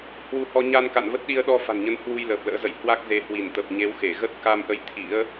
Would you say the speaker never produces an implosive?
no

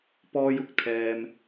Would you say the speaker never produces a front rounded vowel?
yes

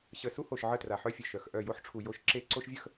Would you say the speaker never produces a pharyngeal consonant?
no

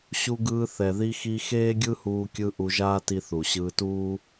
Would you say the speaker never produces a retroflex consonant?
yes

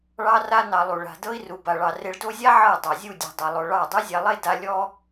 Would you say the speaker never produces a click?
yes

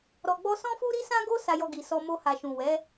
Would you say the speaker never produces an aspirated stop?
yes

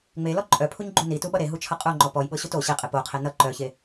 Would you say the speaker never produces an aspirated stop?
no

